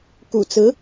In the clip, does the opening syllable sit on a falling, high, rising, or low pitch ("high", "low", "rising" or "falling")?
low